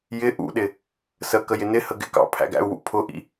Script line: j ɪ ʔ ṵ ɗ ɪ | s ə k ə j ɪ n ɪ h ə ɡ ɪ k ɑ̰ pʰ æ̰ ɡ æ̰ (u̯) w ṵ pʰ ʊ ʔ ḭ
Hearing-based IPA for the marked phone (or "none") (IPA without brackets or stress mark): u̯